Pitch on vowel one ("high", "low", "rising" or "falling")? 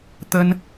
high